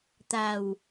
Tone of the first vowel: low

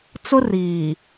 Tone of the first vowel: high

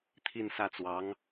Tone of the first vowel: falling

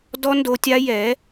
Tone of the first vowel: high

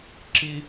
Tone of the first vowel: high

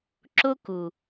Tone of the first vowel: high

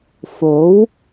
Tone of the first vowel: rising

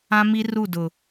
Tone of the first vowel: high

